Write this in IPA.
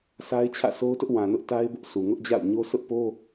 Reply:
sʰa˦ɪ̯t͡ɕʰä̰˦˨sʰo˦ʊ̯tʊ˦ʔ wã˨nʊ˦ʔta˦ɪ̯bʊ˦ʔ sʰu˨ŋʊ˦ʔd͡ʑa̰˦˨ʊ̯ɲo˦ sʰʊ˦ʔpo˦

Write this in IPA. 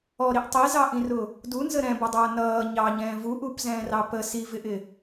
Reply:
ɔɾiʔ tˤizɑʔĩrʊ | dunzə ɾɛ̃bʌdˤʌː nʌː ɲɑɲɛ̃ː vuʔupzɛ̃ːrɑ pə sivɪʔɪ

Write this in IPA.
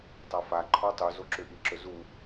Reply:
tˤafa ǃʰɔtˤu zoǁʏʔi ǁɵzu

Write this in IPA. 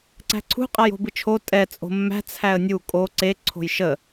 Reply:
ǀæ̤ǀʰṳ qʼajo̤bɨt͡ʃʰo tʼɛ t͡sʼo̤mːæ̤ t͡sʰæə̯nʲu kʼo ǀe ǀʰo̤jʃə

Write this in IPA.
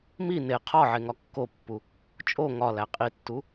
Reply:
mi ne qʰɒʕeŋɒ kːopːu | t͡ʃʼo ŋɒlæ qʼitːu

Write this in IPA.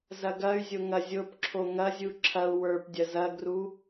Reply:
zɐɡɐy̯zʲo ŋɐzʲopǁʰo ŋɐzʲu ǁʰɐu̯ wə˞pdʲɐ zɐɡru

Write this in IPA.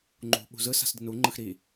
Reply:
ŋ͡ǃṳ ɓṳzɯ sa̤sdinu ŋ͡ǃɯxɾi

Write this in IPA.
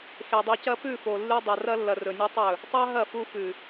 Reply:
xe˨dˤo˧cɐ˦ pʉ˦˨fo˨lːʉ˧ dˤa˨rɐ˧lːɐ˨ rɵ˨nʲɵ˦tˤɵ˦˨ | tˤa˦ɦɐ˦˨ fu˧fʉ˨

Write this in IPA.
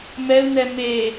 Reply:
mɛu̯nɛ me

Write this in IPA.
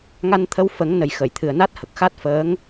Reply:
ŋa˧nt̪ʰə˧wfə˨˩˦ŋnə˨˩j xə˨˩˨j t̪ʰɨ˨˩ə̯na˦˥t̚ hə˨˩k̚xa˦˥t̚fəː˧˥ŋ

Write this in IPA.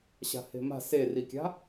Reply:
ɕa̤he̤ma̤ serikʲa̤

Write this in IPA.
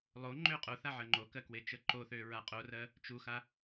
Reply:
lˠoŋ͡ǃø qʼoθa ʕɜŋ͡ǃokɜ kwet͡ʃəǃoθø ɹaqʼorɜ | t͡ʃuxa

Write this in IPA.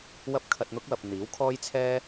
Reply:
wɐ˥p̚kʰɐ˧t̚n̪ʊ˥k̚ wɐ˨p̚n̪iː˨˥wkʰɔː˥jt͡sʰɛː˥

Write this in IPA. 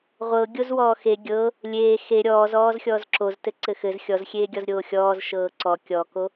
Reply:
ʁʷɤ ɡʲozwɔːxe ɡʲɤ | lʲeː xe ɾʲɔːz ɔːzxʲɔːzǁoztɘ ǀɘxɘz xʲɔzxʲeːɡʲɔz ɾʲoːxʲɔːz ʃɤːǀɔ kʲɔko

